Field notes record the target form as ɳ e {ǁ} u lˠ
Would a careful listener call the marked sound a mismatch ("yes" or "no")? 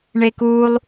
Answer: yes